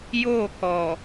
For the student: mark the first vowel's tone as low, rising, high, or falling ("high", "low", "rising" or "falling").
falling